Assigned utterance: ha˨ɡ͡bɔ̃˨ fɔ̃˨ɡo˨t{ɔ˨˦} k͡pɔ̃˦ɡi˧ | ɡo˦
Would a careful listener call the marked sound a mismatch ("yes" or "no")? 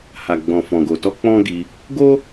yes